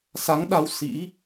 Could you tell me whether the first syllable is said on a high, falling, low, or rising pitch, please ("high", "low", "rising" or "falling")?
rising